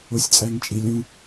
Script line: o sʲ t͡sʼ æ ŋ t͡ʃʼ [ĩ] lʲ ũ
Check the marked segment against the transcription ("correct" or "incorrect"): incorrect